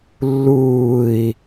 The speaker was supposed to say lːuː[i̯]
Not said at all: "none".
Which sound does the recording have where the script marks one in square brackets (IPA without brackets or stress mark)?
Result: i̯